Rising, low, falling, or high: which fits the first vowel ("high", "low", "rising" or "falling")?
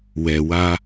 low